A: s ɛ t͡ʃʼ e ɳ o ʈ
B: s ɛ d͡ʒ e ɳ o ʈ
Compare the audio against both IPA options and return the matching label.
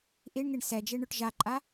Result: B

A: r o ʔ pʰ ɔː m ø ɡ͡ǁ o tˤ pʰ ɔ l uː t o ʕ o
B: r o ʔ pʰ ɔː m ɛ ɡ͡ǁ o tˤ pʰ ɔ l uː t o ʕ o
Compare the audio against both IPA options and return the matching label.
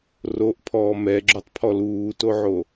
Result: B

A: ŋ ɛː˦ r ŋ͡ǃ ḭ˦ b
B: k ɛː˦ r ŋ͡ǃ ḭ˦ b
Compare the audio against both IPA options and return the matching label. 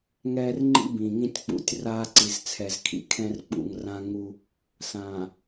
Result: A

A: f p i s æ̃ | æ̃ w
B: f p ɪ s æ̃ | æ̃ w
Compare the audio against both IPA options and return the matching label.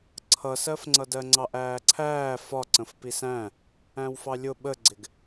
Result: A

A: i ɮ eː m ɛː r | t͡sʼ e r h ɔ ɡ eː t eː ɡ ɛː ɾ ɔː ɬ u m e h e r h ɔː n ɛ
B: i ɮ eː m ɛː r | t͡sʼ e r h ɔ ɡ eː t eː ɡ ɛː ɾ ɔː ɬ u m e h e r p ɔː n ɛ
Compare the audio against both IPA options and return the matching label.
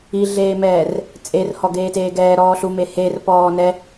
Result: B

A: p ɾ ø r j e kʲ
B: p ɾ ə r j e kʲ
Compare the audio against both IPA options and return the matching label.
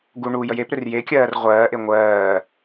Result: A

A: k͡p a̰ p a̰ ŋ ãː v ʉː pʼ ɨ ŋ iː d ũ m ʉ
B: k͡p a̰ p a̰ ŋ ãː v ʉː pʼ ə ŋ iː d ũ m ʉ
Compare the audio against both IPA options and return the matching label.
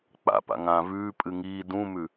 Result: A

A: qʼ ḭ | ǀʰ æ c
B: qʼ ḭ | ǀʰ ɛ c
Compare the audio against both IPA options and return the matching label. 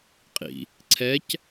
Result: B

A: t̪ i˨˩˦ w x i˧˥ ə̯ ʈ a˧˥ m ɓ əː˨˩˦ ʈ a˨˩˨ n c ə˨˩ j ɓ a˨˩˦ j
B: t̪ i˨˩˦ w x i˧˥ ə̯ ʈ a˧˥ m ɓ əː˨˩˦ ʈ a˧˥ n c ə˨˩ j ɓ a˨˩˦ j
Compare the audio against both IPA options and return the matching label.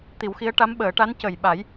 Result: B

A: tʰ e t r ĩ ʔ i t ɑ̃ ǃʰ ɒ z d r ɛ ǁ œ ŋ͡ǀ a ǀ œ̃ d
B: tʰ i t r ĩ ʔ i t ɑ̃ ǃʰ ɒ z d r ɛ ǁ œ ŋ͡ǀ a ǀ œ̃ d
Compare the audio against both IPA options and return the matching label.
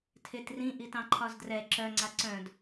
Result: A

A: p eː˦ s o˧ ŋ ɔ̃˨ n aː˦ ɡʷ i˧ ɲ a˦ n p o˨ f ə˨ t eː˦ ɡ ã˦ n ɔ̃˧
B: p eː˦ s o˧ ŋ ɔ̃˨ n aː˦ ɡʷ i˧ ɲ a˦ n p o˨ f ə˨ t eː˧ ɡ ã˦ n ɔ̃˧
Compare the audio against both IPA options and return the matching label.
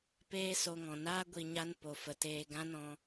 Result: B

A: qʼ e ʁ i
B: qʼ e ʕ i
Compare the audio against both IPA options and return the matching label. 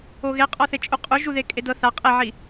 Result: B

